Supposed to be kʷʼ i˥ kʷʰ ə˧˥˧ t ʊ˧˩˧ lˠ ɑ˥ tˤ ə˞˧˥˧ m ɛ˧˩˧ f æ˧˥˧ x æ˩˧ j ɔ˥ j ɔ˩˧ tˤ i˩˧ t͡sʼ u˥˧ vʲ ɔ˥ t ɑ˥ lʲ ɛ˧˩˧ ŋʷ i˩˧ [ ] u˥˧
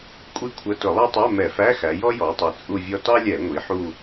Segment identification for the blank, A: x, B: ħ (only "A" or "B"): B